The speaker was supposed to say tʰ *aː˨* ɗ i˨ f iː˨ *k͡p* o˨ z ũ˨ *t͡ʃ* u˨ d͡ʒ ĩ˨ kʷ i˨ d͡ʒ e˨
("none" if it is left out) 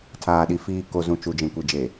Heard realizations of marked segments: aː˨, k, t͡ʃ

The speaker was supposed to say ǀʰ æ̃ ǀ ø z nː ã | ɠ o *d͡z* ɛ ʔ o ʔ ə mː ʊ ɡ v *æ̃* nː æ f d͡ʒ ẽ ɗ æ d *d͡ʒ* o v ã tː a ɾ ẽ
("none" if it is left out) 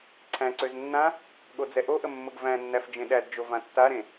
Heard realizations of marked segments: d͡z, æ̃, d͡ʒ

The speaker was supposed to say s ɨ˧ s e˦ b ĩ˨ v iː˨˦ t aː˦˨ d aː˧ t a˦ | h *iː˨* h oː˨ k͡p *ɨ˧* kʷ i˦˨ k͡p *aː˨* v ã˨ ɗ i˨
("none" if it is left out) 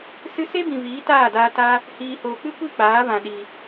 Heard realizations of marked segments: iː˨, ɨ˦, aː˨˦

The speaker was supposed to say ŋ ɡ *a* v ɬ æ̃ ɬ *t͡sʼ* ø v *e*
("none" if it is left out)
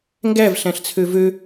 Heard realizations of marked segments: æ, t͡sʰ, ø

